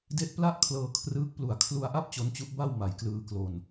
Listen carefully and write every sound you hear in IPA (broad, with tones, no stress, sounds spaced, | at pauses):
d e˦˥ ʔ p l a˥˩ ʔ kʰ l ɤː˧ kʰ r ɯː˦˥ k̚ p l u˨˩ a̯ kʰ l u˧ a̯ ʔ a˥˩ p̚ t͡ɕ o˦˥ n t͡ɕ u˦˥ ʔ b a˥˩ w m a˨˩ j k l ɯː˧ k l o˧ n